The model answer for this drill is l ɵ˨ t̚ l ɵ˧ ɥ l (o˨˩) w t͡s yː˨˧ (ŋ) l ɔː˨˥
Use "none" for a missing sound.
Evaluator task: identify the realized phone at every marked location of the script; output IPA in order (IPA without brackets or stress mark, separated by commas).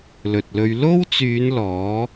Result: o˥, n